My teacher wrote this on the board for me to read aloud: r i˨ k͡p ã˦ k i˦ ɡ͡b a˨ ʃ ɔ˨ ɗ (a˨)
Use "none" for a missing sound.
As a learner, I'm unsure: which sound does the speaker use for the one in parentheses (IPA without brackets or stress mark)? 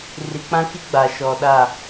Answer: a˦˨